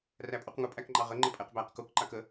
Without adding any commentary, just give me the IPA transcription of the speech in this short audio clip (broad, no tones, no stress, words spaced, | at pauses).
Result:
ræpʼuqŋʊ pʼækŋ͡ǃɑʁə ŋ͡ǃəpʼɛqbæq kuk ǃakə